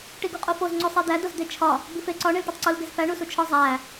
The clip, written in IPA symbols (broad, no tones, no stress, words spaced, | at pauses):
ʈiɡuqʼofoz ŋ͡ǀosˤid̪æ dozd̪et͡ʃʰɒ | bife ǀɒ ɳilʈotˤǀul ɡezfæ ɳusut͡ʃʰɒ zˤæ